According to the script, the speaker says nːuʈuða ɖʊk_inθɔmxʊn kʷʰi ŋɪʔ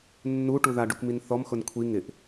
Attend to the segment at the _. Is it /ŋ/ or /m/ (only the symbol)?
m